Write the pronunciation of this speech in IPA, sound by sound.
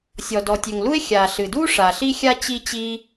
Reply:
sʲ ɔ˩ d ɔ˩ tʲ ø˩ ŋ l u˥ e̯ xʲ aː˩ ɬ ɨ˩ d uː˥ ʂ a˩ ɬ i˥ xʲ a˥ t͡ɕ i˥ t͡ɕ iː˥

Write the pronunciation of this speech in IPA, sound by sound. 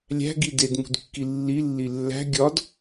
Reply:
lʲ æ̤ ɡ i d e d m ṳ d kː i lː i lː i lː æ̤ ɡʲ ɒ d

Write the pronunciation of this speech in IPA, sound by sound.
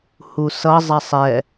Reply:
h u s ʌ zˤ a sˤ ɛ

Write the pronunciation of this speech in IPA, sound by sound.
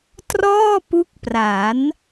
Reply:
t r ɔː˥˩ p u˦˥ k̚ p r a˩˦ n

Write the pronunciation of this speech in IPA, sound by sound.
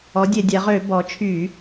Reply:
ɔ˩˥ dʲ e˧˩˧ dʲ ɛ˩˧ ʁ ø˧˩˧ b ɔ˩˧ t͡ʃʰ y˧˩˧

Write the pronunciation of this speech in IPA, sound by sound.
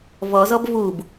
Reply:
v ɔ z ɔ b v u b

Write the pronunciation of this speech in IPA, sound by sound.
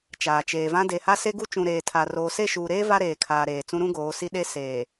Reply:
t͡ʃ aː˨ t͡ʃ eː˨ v ã˦ d e˨ h a˦ s e˦ ɡ u˦ t͡ʃ ũ˨ ɾ eː˨ tʰ a˨ r oː˨ s e˦˨ ʃ uː˨ ɾ eː˦ v a˦ ɾ eː˨ kʰ aː˨ ɾ eː˨ t͡s ũ˦ ɾ ũ˦ ɡ oː˨˦ s i˦ ɗ e˦ s eː˨

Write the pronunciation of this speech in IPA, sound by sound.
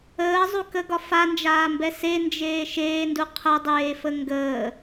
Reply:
əː zˤ u k ə ɡ ɒ f a n d͡ʒ aː m b ɛ s e n d͡ʒ eː ʃ eː n d u qʰ ə dˤ eː f ə ŋ ɡ əː

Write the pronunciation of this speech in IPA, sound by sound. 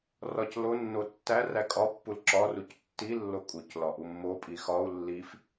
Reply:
r ɒ c l o nː o tː æ r æ kʼ ɒ pː u l ǁ ɒ r u c tː i lː o kʼ u c l ɒ ʔ u mː o pʼ i x ɒ u̯ lː i f

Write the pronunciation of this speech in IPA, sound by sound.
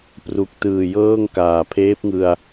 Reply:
p r u˨˩ k̚ t ɯː˨˩ j ɤː˥˩ ŋ k aː˨˩ pʰ eː˦˥ p̚ ŋ ɯ˧ a̯

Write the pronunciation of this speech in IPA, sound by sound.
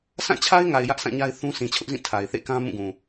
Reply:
sʰ ã˦˨ t͡ɕʰ a˦ ɪ̯ ŋ a˨ ɪ̯ j ä˦ ʔ sʰ ã˦˨ ɲ a˦ ɪ̯ θ ũ˦ s ĩ˨ t͡ɕʰ ʊ˦ ʔ z ĩ˦˨ tʰ a˨ ɪ̯ θ ḛ˦˨ k ã˦ m ũ˦˨ ɡ ũ˨

